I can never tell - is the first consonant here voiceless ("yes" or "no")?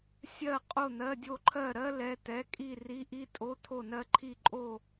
yes